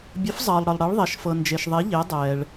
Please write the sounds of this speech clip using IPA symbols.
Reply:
bʲ ə˩˥ f zˤ ʌː˩ lˠ ɽ ə˩ lˠ ɽ e˩˥ ɭ ðˤ ɛ˩ ʃ f ɤ˩ n d͡ʒ e˩ ʃ ðˤ e˩˥ ʎ e˩˥ dˤ ɛː˩ ɭ

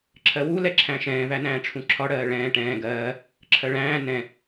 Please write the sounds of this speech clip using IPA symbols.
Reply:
ǁʰ ɜ w u l ɛ ǁʰ æ̃ ʃ ɛ̃ː v æ n æ̃ː ʈ͡ʂʰ ũ ǁʰ ɒ ɽ ɜː ɭ ɛ̃ː ʈ ɛ̃ː ɡ ɜː | ǁʰ ɜ ɭ æ̃ː n ɛ̃

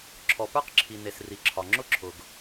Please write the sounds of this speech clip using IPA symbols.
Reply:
ǁʰ ɔ˩ p ə˞˥ q ǁʰ i˩ n e˩ s r i˩ ǁʰ ɒ˩ ŋ͡ǁ ʊ˥ ǁʰ ʊ˩ ɡ

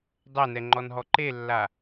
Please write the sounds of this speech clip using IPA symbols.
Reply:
dˤ ɛ n ɛ ŋ͡ǃ ɔ n ɦ ɔ ǃ e lː a

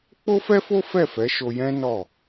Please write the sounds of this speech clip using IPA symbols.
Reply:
k͡p o˦ f ɛ˦ f o˦ f ɛ˦˨ f ɛ˨˦ ʃ o˧ j ɛ̃˦ n ɔ˦˨

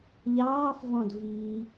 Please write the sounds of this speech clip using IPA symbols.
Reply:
ʎ ɑː f v ɔ̃ d v i

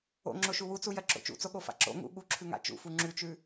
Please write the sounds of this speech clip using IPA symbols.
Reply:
o̰ ŋ͡ǁ o ʃ u w u t͡s u j ɜ ǁ o̰ t͡ʃ ṵ t͡s o ɠ o f a̰ ǁ o̰ ŋ ṵ ɠ u ǁʰ ʉ ŋ a̰ t͡ʃ ṵ f u ŋ͡ǁ ʉ t͡ʃ ʉ

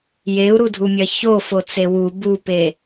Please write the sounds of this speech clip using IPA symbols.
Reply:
j e u̯ ɾ u dʱ u mʲ ɐ ç o f o t͡s e w u b u p e

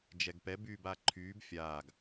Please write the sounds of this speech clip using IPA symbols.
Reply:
d͡ʒ ɛ ɡ p ɛ b yː b aː ǃʰ yː b fʲ aː ɡ

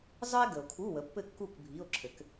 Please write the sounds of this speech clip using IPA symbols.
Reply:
zˤ ə˥ e̯ ɡ ə˨ o̯ kʰ u˧˥˧ w ə˨˥ pː ɘ˥˨ kː u˥˨ k bʱ i˧˥˧ o̯ ǁʰ ɘ˨˥ k

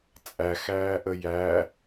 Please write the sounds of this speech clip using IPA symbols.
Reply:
t͡sʼ æ x æː ʔ ə j æ

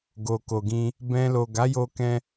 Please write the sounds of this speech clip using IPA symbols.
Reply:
ɡ o˨ k o˨ ɡ ĩ˧ | b ɛ̃˧ l o˨ ɡ a˨˦ j o˧ k ɛ̃˧

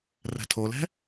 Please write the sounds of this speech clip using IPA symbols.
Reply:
r ɛ̤ tʰ o l ɛ̤

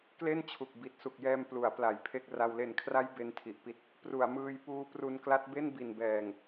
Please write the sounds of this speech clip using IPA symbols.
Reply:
k l e˥˩ n t͡ɕʰ u˨˩ k̚ b i˨˩ t̚ s u˨˩ k̚ j ɛː˧ m p l u˩˦ a̯ p l a˩˦ j pʰ e˥˩ k̚ r a˧ w l e˨˩ n kʰ r a˦˥ j b e˦˥ n tʰ i˨˩ ʔ p i˦˥ t̚ | p r u˩˦ a̯ m ɯː˧ j p uː˦˥ p r u˧ n k l a˦˥ t̚ b e˥˩ n b i˨˩ n b ɛː˨˩ ŋ

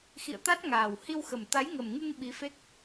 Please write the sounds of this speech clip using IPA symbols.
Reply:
x ḭ˧˨ ə̯ t̪ a˦˥ t̚ ŋ aː˨˩ w h i˧ w x ə˨˩ m t̪ a˨˦ j ŋ ə˨˩ m ŋ ɨ˧ ŋ ɓ i˨˦ f e˦˥ k̚

